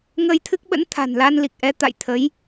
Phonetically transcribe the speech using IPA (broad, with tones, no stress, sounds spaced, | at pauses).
ŋ əː˧ j t̪ʰ ɨ˦˥ k̚ ɓ ə̰˧˥ n t̪ʰ a̤˨˩ n l a˧ n l i˨˩ k̚ ʔ ɛ˨˦ t̪ a̰˧˨ j t̪ʰ ə˨˦ j